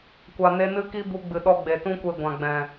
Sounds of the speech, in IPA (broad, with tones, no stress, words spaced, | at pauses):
kʷa˨ne˧ nɨ˧ki˧ bu˧ɡ͡bɨ˨ɗɔ˧ ɡ͡be˨tũ˦kʷe˧ɡʷã˨ ɡ͡bɛ̃˨